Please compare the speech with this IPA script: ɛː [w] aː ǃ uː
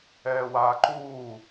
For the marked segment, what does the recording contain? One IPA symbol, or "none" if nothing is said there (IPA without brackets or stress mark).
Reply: w